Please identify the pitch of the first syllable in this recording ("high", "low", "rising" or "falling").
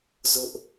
high